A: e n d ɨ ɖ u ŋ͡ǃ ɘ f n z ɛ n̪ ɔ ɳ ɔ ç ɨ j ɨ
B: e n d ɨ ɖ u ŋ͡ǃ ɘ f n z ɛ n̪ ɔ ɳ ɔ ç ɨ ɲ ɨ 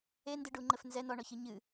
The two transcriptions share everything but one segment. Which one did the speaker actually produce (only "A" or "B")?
B